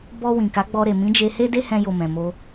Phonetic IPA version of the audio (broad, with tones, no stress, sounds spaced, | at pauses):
b ɔ˧ w ĩ˨ k a˨˦ ɡ͡b ɔ˧ ɾ e˨ m ĩ˨˦ d͡ʒ e˧ h e˦ d e˦ h ɛ̃˧ j o˨ m ɛ̃˨ m o˧